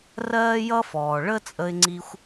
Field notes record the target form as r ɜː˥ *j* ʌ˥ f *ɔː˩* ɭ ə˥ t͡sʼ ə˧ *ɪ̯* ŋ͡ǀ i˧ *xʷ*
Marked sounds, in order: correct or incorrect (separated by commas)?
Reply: correct, correct, correct, correct